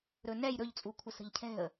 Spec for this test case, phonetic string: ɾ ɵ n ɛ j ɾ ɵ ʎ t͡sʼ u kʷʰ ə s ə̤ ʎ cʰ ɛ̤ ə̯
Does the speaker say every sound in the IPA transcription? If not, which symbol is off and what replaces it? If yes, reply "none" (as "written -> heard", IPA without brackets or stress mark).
none